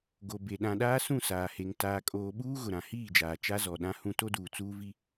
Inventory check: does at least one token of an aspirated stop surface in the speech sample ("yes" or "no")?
no